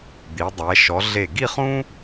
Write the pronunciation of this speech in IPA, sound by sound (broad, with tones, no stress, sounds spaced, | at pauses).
d̪ i˩˧ dˤ ɛ˩˧ ʃ ɔ˩˧ ɮ e˧˩ ɡ i˥˧ χ ũ˥